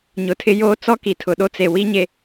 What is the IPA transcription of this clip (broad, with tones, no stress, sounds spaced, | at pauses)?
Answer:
ɲ ʊ˨ tʰ ɪ˦ j o˦ t͡s ɔ˦ k i˨ tʰ ʊ˨ ɗ o˦ t͡s e˨ w i˦ ɲ e˨